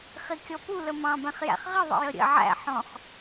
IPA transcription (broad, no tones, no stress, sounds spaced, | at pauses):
χ i kʲ ɔ p u l ə m ɑ̃ b ɛ̃ χ j æ̰ χ ʁ ɪ ðˤ ə̰ j ə ɾʲ ə̰ ʕ æ̰ ħ ɔ̃ χ